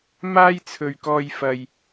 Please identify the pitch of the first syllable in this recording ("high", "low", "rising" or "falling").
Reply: high